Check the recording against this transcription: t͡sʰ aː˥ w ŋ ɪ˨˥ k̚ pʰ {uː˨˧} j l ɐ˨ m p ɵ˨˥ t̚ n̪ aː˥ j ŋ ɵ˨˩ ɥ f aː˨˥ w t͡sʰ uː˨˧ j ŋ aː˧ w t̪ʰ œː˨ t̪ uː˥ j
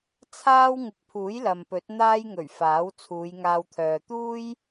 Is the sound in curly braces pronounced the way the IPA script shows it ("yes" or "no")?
no